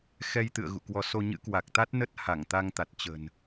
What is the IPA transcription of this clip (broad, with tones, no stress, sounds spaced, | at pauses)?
x ɛ˧ j t̪ ɨ̰˧˨ ə̯ ɣ ṵ˧˨ k w ɔ˧ s o˧ ɲ ɨ̰˧˥ k w a˨˩ k̚ t̪ a˦˥ t̚ n ə˦˥ t̚ h a˧˩ ŋ t̪ a˧ ŋ t̪ a˨˩ t̚ t͡ɕ ə̤˨˩ n